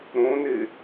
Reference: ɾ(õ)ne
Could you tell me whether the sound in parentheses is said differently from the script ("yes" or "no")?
no